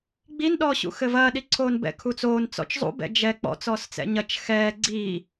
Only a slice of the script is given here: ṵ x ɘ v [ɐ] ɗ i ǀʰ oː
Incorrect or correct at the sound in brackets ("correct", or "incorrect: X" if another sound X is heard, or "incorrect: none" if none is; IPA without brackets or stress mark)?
incorrect: ɐː